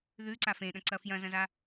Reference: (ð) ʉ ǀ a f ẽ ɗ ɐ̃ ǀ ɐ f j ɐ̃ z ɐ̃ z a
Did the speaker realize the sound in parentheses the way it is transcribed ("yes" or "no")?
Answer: yes